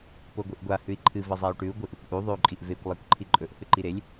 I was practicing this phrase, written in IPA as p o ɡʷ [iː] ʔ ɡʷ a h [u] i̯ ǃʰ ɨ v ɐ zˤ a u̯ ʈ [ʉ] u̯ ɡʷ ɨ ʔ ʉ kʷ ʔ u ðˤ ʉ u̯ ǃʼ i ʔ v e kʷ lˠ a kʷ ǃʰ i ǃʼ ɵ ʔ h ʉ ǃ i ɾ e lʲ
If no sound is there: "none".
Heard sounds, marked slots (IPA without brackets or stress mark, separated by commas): i, ʉ, ʉ